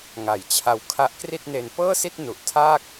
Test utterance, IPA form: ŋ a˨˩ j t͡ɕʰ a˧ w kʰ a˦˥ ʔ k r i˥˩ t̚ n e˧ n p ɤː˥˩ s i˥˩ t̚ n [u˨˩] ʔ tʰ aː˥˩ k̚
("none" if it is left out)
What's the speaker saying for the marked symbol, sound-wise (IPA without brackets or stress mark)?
u˨˩